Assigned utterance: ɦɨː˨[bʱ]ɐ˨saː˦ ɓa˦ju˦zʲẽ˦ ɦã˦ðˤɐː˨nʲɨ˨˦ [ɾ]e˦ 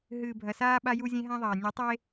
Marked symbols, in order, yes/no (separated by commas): yes, no